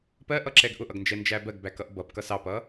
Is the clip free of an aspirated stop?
yes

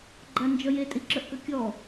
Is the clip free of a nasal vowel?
yes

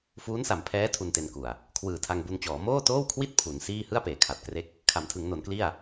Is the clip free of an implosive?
yes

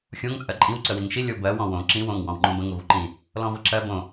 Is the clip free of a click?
no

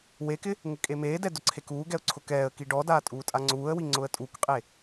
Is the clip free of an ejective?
no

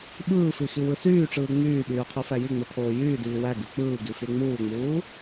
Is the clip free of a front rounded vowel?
no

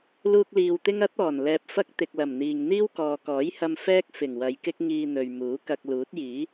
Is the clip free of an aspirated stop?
yes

